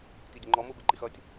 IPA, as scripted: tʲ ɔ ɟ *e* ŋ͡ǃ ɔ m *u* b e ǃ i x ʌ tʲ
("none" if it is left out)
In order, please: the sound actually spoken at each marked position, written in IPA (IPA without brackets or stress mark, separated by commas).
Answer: e, u